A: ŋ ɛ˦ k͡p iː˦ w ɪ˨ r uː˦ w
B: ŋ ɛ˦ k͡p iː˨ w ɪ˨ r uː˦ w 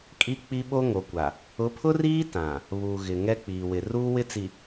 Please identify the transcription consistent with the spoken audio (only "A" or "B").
B